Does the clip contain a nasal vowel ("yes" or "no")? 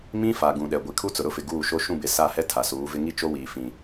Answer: yes